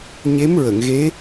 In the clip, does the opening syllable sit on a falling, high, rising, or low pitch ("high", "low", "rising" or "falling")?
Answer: rising